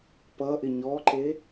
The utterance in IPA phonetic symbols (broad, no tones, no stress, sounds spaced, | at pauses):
p ʌ ʔ ɪ ɲ ɔ ǃ e